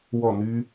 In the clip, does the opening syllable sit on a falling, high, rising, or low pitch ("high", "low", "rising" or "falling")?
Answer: falling